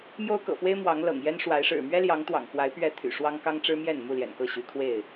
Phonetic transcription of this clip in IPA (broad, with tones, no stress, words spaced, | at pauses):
mjo˦ʊ̯kɤ̰˨˩fwe˦ɪ̯ mwɑ˨˦ŋlɤ̰˨˩ŋ jɛ˦nʂwa˨˦ɪ̯ʂɻ̩˨˩ mɥɛ˦ljɑ˨˦ŋ t̪wɑ̰˨˩ŋkwa˨˦ɪ̯pɥɛ˨˦ t̪ʰy̰˨˩ʂwɑ˦ŋ kɑ˦ŋʈ͡ʂɻ̩˦mjɛ˥˨n mu˥˨ljɛ̰˨˩nkɤ˥˨ ɕy˨˦kʰwe˥˨ɪ̯